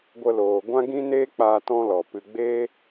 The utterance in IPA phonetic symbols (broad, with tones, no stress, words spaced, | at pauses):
ɡʷə˧loː˨ ɡʷã˦ɡĩ˦neː˦k͡paː˧ tɔ̃˦lɔ˨pɨ˧ ɡ͡be˦